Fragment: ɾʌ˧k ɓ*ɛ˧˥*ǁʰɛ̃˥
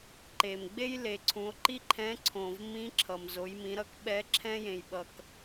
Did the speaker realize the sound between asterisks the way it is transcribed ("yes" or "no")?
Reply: yes